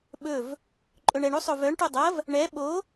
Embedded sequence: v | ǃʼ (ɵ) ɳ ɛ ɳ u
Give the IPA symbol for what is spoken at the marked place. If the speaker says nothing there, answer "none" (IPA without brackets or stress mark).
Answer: ɵ